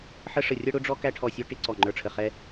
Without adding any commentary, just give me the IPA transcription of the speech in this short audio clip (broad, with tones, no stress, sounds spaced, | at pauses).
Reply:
ħ ə˦ ʂ ə˧˩ rʲ ʌ˦ ɽ ʊ˦ ɖ͡ʐ ɔ˦ k æ˦ ʈʰ ɔ˧˩ sʲ ɔ˦ ʈ ɪ˦ ǀ ɔ˧˩ ŋ͡ǃ ə˞˧˩ ʈ͡ʂʰ ə˧˩ χ ɛ˦